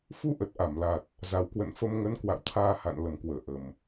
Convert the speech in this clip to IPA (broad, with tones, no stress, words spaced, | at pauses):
fu˧ʔə˨˩t̚ʔa˧˩mla˨˩t̚ | za˨˩wkwə̰˧˨nfə˧mŋə˨˦n kwa̰˧˨wt̪ʰaː˧ha̰˧˨n lə˧˩mkwəː˧˩ ʔə˨˩m